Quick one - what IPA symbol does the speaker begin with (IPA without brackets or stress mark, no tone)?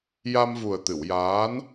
j